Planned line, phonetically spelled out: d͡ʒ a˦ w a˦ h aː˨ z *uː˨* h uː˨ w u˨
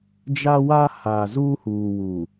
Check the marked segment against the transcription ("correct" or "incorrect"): incorrect